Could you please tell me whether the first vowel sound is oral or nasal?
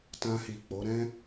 nasal